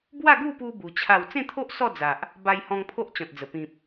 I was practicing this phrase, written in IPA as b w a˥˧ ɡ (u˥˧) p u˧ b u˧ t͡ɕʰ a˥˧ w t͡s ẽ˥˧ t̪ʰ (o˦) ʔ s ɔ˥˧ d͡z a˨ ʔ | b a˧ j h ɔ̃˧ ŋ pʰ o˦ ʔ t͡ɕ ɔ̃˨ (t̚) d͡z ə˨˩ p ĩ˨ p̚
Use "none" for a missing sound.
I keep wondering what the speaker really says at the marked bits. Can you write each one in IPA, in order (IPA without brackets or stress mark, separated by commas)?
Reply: u˥˧, o˦, t̚